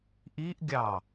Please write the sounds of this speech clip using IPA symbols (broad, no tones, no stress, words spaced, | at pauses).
ʔiʔɡʲɑ